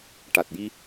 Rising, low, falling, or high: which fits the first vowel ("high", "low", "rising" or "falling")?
low